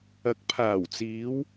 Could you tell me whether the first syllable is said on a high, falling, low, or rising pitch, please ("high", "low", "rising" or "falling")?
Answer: rising